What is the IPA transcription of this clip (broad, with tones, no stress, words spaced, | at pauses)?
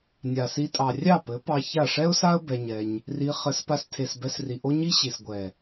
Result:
nʲa˨si˧tʼɑ˨ rʲɑ˦˨pɘ˨˦ pɑ˧ ça˦˨ ʂɛ˦ʊ̯sa˦ə̯ bɛ˧ɲɛ˧ɲ | ri˧ χɘ˨˦spa˧stʰe˨s bɛ˧sri˨ʔo˦ ɲi˦ɕi˨sɡʷɛ˨